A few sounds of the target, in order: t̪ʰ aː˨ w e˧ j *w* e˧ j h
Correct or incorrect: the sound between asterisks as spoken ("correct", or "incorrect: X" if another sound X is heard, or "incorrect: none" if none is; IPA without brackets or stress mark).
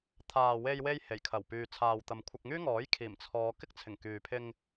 correct